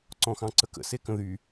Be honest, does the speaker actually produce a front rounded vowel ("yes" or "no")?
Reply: yes